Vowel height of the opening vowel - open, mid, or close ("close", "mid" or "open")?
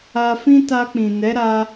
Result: open